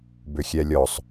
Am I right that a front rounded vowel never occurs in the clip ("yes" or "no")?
no